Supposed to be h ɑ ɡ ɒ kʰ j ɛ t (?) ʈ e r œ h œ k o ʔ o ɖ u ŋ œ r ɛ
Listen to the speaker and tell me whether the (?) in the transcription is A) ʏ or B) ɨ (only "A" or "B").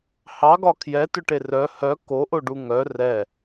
A